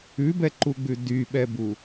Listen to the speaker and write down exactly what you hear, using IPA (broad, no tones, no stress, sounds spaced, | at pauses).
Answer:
ʉ b ɛ ǃ u ɡ͡b ʉ d y ɓ ɛ b u